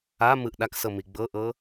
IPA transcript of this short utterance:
a m ɯ ʔ ɗ a k s ɤ m i ɡ͡b ɤ ʔ ɤ

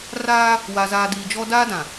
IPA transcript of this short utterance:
r aː˦ | w a˨ z aː˨ d iː˨ d͡ʒ ɔ˦ d aː˦ d ã˨

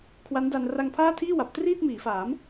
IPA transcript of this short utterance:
kʰ w a˦˥ n d a˧ n r a˧ ŋ pʰ aː˥˩ tʰ iː˥˩ w a˨˩ p̚ t r iː˥˩ t̚ m iː˩˦ f aː˩˦ m

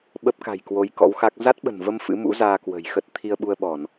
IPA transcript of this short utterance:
ɓ ə˦˥ p̚ k a̤˨˩ j k w o˨˦ j k ɔ̰˧˥ w x a˦˥ k̚ z a˦˥ t̚ ɓ ə̤˨˩ n v ə˧ m f ɨ̰˧˥ m ṵ˧˥ z aː˧ k w ə̤˨˩ j x ə˦˥ t̚ t̪ʰ i˧ ə̯ ɓ u˧ ə̯ ɓ ɔ˧˩˨ n

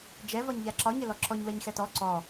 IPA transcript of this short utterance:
d͡ʒ ɛ v ɒ ɲ ʎ a ǁ ɒ ɲ ɘ l ɔ ǁ ɔ ɲ w ɛ ɲ x ɛ t ɔ ǀ ɔ

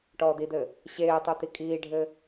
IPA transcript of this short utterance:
ʈ ɔː d̪ i d̪ ɘ | ɕ eː tˤ u t̪ i kʼ iː ɖʱ ɘ

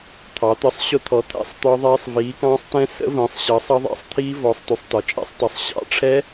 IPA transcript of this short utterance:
t̪ʰ ɑ˨˥ t̪ ə˦˥ sˤ ɕ ʊ˦˥ t̪ʰ ɔ˨˥ t̪ʰ æ̰˦˥ sˤ t̪ ɒ˦˥ ðˤ ɛː˦˥ sˤ v iː˨˥ k ɑ̃ː˦˥ sˤ t ɛ̃˦˥ s ə̰˦˥ v ə̃ː˨˥ sˤ ɕ ʌ˨˥ sˤ ʌ˦˥ ðˤ æ̰˦˥ sˤ t̪ʰ iː˦˥ v ɔ˨˥ sˤ t u˨˥ sˤ t ɒ˨˥ t͡ʃʼ æ̰˦˥ sˤ tˤ ʌ˨˥ sˤ ɕ ɑ̰˦˥ ʈ͡ʂʰ ɛ˦˥

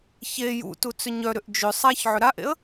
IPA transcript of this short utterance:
ç e j ṵ t u t͡s ʏ ɲ œ ɾ ʏ ʔ d͡ʒ ʏ sˤ a ç ʕ ʏ ɾ a ʔ ḛ ə̯

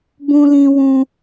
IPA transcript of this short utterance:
b ũ˦ l ĩ˦ w ũ˦

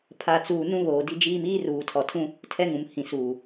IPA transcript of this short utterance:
pʰ a˨ t͡s uː˨ n ũ˦ β oː˨ d i˦ d͡ʒ iː˦ m iː˦ r uː˨ tʰ ɔ˨ tʰ ũ˦ | tʰ ɛ˦ ŋ ũ˨ m h ĩ˨ s uː˨

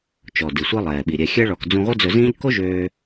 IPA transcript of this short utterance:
t͡ʃ ɔ˩ d i˩ sʷ i˧ lˠ ɛː˩ ɓ i˩ ɾʲ ɛ˩ xʲ ɛ˧ ɭ ɔ˩ k d͡z ũ˧ ʁʷ œ˥ d͡z ɵ˧ z ĩː˥ ʎ k o˥ ʒ øː˧

